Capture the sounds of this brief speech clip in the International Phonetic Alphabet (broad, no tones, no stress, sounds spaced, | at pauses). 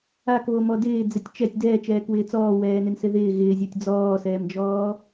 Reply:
a k β o m ɔ d ɪː d͡z ɪ tʲ t͡ʃ ɛ tʲ d ɛː t͡ʃ ɛː k w ɪː t͡s ɔː w ɛː n ɪ n s ɪ ð ɪː ɣ ɪː zʲ ɔ tʲ d͡z ɔː s ɛː m d͡ʒ ɔː